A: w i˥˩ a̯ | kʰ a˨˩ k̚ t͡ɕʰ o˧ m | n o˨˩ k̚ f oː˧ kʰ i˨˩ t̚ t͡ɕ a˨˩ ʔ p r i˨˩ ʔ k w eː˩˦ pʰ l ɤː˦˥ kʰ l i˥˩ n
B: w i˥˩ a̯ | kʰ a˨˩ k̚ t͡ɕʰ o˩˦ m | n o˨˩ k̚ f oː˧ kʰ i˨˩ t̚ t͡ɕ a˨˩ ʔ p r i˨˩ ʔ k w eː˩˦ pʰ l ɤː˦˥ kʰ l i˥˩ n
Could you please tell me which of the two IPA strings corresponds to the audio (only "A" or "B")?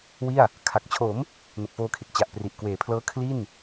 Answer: B